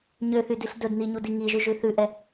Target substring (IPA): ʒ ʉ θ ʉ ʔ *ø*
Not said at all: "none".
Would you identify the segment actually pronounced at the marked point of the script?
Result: ɛ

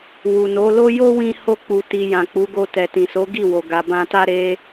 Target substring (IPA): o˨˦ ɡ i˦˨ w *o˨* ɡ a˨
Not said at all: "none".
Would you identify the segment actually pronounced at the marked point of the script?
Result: o˨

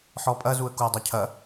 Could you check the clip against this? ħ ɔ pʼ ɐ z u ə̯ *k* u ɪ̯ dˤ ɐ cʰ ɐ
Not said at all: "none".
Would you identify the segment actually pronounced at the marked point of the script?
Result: k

